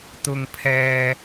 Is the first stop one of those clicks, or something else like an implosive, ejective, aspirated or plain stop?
plain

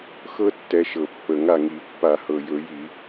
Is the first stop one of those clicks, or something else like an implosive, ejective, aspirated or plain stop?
plain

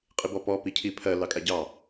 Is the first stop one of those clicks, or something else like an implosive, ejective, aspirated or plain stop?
ejective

